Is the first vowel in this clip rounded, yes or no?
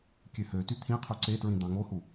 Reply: yes